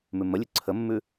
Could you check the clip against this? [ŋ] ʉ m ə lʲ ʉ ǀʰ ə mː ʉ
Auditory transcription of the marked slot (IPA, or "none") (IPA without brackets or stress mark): m